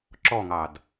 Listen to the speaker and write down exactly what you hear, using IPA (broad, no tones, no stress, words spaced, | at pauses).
ǁɔŋɑd